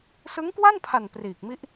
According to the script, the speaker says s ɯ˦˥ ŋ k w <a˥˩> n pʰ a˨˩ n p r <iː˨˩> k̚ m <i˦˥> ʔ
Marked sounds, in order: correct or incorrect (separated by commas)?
correct, correct, correct